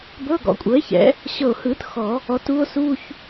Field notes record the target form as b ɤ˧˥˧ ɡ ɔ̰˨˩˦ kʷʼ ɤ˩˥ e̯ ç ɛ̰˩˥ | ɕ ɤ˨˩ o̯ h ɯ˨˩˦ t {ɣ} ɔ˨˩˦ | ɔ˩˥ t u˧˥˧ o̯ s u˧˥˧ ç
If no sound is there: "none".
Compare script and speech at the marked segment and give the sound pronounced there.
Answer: x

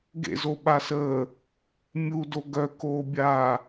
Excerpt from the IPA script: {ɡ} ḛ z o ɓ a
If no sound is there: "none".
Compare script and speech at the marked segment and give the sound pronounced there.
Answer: ɡ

